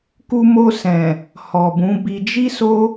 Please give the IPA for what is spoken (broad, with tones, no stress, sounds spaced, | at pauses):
k u˧ m o˧ s ɛ̃˨ | h ɔ˨ b ũ˨˦ b i˧ d͡ʒ i˦ s o˦